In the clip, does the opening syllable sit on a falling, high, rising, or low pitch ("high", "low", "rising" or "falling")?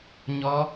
high